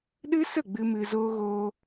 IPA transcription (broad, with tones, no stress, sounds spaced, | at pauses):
ɗ ɨ˦ s ə˦˨ ɡ͡b ɨ˧ m ɨ˧ z oː˦ ɣ oː˦